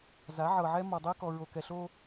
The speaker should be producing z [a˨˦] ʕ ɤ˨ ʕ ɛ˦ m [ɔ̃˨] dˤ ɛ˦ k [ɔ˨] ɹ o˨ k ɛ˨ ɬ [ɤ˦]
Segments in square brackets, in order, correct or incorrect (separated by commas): correct, incorrect, correct, incorrect